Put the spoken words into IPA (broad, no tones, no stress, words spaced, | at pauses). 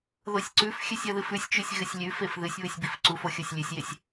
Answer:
ðosʲǀʉfxʲɨsʲ ɐðɨfʉsʲt͡ʃʉsʲ ɣɨsʲlʲʉfef ðɨsʲ βɨsʲbifǀufo xʲosʲlʲʉsʲjesʲ